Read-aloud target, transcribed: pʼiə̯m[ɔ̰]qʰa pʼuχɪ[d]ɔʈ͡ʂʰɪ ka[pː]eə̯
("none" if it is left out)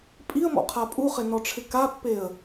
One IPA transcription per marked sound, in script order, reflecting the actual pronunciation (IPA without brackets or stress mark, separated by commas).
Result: ɔ̰, n, pː